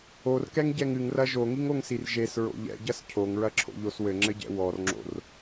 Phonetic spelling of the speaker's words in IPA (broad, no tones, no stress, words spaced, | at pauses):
orkɛŋɟɛŋ ɨŋrɐ ʒoŋiŋoŋsir ʒesɹo̰ ʎɛ̰ɟɐs cʰoŋɹɐǁʰo̰ʎos wɘŋ͡ǁɘɟɛ̰ wɔrŋ͡ǁo̰r